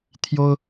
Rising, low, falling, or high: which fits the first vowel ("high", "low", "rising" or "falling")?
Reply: high